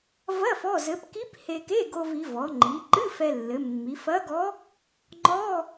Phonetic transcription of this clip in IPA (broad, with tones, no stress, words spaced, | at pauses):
vɐ˧˥˧ fɔ˧˥˧zɘ˧˥p ki˧˥p he˧ke˧˥˧ ɡo˧vi˩˧vɔ˩˧ ŋ͡ǃi˩˧ǃɨ˧˥˧ fɛ˧lːɘ˩˧mːi˩˧ fɐ˧˥ɡɔ˧˥ | ŋ͡ǃɔ˧˥˧